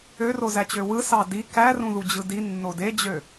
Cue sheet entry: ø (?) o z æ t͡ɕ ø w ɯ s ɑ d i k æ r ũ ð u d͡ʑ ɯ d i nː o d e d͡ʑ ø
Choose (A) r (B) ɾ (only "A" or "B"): A